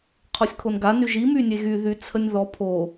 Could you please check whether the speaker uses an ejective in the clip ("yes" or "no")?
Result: no